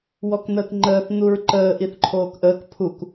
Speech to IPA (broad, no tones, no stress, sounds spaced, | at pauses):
w ɔ k n̪ əː k ŋ͡ǃ əː θ n̪ u ɹ ǃ əː ʔ i θ ǃʰ oː k ʔ əː k pʰ u k